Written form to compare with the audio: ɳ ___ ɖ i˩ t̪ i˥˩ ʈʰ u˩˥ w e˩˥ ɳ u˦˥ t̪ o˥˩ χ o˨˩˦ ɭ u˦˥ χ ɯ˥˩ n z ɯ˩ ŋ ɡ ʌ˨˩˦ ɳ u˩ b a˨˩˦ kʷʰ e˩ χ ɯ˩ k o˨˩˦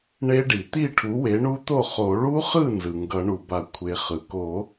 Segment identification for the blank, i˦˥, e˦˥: e˦˥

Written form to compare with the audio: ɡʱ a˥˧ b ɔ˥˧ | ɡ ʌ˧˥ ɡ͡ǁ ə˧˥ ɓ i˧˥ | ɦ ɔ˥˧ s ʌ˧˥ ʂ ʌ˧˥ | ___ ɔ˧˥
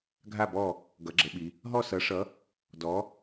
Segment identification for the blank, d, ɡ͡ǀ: d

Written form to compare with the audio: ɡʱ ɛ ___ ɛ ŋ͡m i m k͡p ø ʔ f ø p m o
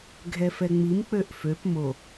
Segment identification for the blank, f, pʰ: f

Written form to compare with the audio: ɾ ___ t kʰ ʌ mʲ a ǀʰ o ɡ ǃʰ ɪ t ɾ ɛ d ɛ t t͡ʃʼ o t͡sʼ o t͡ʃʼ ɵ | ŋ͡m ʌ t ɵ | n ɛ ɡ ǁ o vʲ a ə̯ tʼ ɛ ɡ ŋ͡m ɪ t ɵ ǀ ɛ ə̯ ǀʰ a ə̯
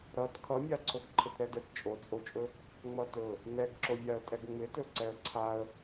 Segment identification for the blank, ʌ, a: ʌ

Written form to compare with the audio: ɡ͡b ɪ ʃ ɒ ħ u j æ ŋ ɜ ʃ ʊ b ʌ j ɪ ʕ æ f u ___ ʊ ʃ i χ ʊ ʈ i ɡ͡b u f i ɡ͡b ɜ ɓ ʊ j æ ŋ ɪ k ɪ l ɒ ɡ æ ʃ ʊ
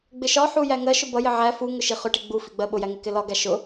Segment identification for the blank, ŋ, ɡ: ŋ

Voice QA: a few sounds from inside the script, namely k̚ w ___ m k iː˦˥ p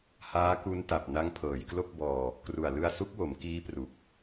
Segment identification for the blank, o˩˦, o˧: o˩˦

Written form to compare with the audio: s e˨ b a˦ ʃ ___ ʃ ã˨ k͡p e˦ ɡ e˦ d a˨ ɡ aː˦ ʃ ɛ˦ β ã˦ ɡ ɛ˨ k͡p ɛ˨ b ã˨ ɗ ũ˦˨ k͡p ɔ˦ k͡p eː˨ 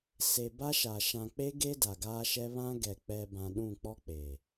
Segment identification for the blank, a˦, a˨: a˨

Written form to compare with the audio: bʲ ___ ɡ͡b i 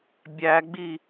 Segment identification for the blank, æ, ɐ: æ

